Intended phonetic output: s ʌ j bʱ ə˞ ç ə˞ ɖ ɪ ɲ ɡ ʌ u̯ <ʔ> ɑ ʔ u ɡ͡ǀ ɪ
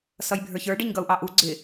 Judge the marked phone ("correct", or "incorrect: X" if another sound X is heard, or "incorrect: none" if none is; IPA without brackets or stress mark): correct